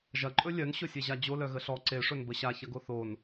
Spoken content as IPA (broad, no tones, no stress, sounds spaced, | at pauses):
ʒ ɐ ǃʼ ɵ lʲ œ n ɕ ɵ sʲ e ʑ a d͡ʑ o l œ ɣ ə ɬ ɔ ǀ e ʂ ɵ n b ə ɕ a ç ɐ ɡ o θ o n